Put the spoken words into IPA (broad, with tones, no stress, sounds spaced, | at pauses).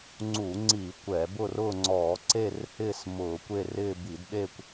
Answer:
ŋ͡ǀ uː˧˩˧ ŋ͡ǀ iː˧˩˧ kʷ ɛː˧˩˧ b ʊ˥˧ r ʊː˥˧ ŋ͡ǀ ɔː˧˩˧ ǀ e˥˧ r h ɪː˥˧ s m ʊː˧˩˧ kʷ e˥˧ r ɪː˥˧ b i˧˩˧ d ɗ e˥˧ kʷ